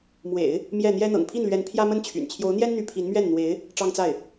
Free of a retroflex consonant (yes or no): no